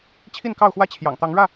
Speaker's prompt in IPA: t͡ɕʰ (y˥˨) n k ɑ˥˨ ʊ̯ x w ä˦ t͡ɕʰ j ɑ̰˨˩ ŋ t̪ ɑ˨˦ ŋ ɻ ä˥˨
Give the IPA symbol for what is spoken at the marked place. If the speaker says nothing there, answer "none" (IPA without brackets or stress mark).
i˥˨